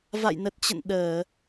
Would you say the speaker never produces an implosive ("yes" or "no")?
no